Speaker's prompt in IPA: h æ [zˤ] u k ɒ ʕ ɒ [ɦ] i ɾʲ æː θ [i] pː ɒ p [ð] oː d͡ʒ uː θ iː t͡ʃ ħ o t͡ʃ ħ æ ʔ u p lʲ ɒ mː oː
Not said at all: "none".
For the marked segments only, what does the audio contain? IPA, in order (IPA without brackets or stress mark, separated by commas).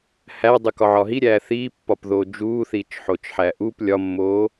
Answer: dˤ, ɦ, iː, ð